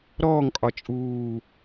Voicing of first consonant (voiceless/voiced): voiced